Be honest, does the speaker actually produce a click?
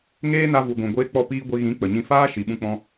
no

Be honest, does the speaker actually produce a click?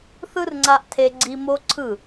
yes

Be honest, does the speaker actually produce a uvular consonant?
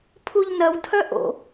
no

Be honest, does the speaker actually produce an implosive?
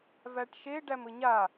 no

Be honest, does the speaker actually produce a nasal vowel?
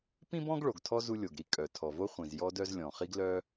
yes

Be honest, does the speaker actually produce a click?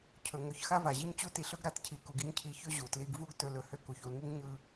no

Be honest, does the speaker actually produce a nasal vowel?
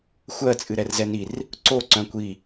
yes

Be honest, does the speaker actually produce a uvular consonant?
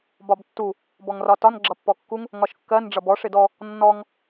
no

